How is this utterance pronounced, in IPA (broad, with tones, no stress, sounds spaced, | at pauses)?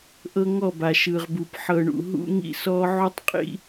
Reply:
ʔ ɤ˦ ŋ ɔ˦˨ b a˨ ʃ ɯ˨ ʁ b u˨ p ħ ɤ˨ ɳ ṵ˨ ɦ ṵ˦ ŋ ḭ˦ s ɔ˦ ʕ u˦ tˤ qʼ ḭ˦